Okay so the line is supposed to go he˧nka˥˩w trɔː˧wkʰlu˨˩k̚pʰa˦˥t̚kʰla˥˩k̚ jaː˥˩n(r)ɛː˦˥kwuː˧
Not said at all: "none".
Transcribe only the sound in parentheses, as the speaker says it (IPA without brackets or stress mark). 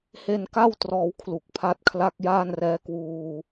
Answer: r